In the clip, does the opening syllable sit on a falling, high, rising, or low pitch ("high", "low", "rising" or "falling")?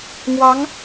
rising